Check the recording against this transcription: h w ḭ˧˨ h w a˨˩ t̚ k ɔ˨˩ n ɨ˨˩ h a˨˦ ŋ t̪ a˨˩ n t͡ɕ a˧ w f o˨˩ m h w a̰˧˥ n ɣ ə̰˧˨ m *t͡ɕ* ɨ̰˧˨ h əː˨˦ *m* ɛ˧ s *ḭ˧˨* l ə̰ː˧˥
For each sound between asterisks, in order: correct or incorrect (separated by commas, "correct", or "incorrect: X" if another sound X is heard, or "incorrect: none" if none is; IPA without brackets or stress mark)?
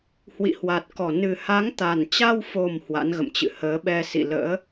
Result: correct, incorrect: ɓ, correct